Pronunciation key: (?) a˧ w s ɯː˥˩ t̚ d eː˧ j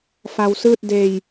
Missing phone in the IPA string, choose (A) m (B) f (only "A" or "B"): B